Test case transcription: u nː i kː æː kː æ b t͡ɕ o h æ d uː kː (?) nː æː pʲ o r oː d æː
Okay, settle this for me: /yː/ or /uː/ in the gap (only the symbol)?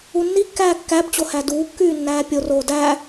yː